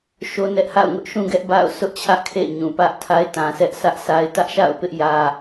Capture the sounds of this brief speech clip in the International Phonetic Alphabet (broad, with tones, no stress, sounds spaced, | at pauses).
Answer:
ʃ o˦ n ɛ˦ ʔ h a̰˦˨ ʊ̯ ŋ ʊ˦ ʔ ʃ ũ˦ ɡ ɛ˦ ʔ b a̰˦˨ ʊ̯ sʰ ʊ˦ ʔ t͡ɕʰ ä˦ ʔ kʰ ḛ˦˨ ɪ̯ ɲ ũ˨ p ä˦ ʔ tʰ a˦ ɪ̯ t ã˨ s ɛ˦ ʔ sʰ ä˦ ʔ sʰ a˦ ɪ̯ t ä˦ ʔ ʃ a̰˦˨ ʊ̯ p ɪ˦ ʔ j ä˦